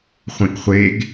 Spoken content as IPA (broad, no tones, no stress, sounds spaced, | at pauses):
χʷ ĩ ʔ χʷ e ɡ